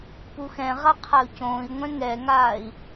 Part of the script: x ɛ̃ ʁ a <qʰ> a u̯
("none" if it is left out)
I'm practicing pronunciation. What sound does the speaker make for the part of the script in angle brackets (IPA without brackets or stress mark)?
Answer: qʰ